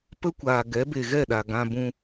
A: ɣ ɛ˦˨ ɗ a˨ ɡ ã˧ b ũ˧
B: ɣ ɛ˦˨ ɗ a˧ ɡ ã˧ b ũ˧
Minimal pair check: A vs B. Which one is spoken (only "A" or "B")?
A